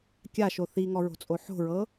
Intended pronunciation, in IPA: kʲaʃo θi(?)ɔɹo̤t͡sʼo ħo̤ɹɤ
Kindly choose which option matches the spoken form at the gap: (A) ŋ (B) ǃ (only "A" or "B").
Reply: A